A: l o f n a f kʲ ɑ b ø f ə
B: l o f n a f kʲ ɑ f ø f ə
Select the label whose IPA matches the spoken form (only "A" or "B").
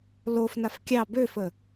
A